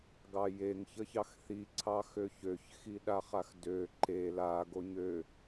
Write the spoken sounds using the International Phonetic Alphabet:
ɡɑjeŋ çəçɑxθi ǀʰɑxøçøç xiɗaχaxdø ǃe la ɡoɲø

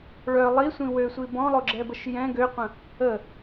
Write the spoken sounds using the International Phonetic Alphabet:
ɭœ lˠisʷĩ wøsʷi bɔ̃lˠoɡ͡ǁɛbəʃ jɛ̃ ɡøqʷə̃ | ə

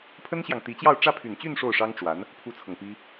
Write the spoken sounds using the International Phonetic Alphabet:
pʰə˥nɕjɑ˨ŋt̪i˧˥t͡ɕjɑ˥˧ʊ̯ ʈ͡ʂä˥˩pʰy˨˩nt͡ɕy˥˧n ʂo˥˩ʊ̯ʂɑ˥ŋʈ͡ʂwa˧˥n | pʰu˥t͡sʰɤ˨ŋ pi˥

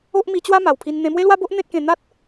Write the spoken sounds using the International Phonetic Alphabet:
o˦ʔ mi˧t͡ɕwa˦ ma˨˩wpʰi˧n n̪ẽ˧mwe˦lwa˦bo˦ʔ n̪ẽ˦t̚kẽ˧ n̪a˦t̚

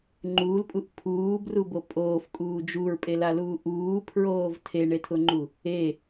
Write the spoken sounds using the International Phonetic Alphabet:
ŋ͡ǃuːlpʼuʔ pʰuːbrubo pʼoːfkʼuː d͡ʒuɹpʼelaluː ʔuːpʰɹoːv tʰeɳetʰʊŋ͡ǃu | e

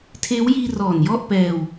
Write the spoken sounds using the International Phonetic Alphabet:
tʰeː˦˥wjiː˧ rɔː˨˩njɔ˥˩ʔ pɛː˧w

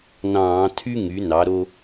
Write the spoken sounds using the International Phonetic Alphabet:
nɑ̃ː˧˩˧tʰy˦ ŋy˩˥nɑ˩˥ɾo˦

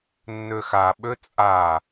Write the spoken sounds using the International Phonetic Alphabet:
nːøxa ɓøt͡sʼa

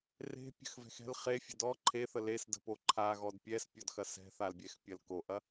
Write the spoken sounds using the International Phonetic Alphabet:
re̤pʲə̤xvɛ̤x ɛ̤l χefʲə̤ dɔ ǃʰeθə lesdə̤po ǃʰaɣɔd pʲɛspʲɔdxɐ sɛ̤θalbʲɛxpʲɐl koʔɐ

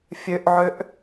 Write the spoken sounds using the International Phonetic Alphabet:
fʲøʔʕøʔ

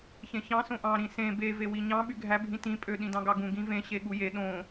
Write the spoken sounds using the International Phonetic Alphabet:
çẽçɑ̃ sõʔɑ̃ ɾĩsẽ be vewiɲɑ̃ ɓyɡʱæ bʱĩtĩ pʼø ɗĩdɑ̃ɡɑɡũ ɡĩvẽ ɕeɠuje ɗõ

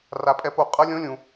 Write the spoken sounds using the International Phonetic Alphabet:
ra˩pʼɛ˧˩po˧˩ qʼʌ˧˥lʲõ˧˥lʲũ˩

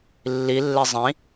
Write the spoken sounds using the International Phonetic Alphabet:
lːilːe zˤĩ

